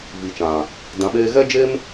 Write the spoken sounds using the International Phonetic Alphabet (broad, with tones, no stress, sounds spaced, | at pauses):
v i˨ t͡ʃ ã˨ | d ã˨ ɓ eː˧ ɣ ɛ˦ d͡ʒ e˦ m